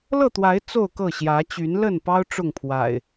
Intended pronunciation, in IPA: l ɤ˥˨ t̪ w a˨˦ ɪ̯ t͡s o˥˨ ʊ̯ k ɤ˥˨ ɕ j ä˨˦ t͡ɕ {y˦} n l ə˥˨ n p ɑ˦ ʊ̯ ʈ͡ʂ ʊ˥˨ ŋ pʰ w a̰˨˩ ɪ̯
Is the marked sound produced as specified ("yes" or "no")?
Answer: no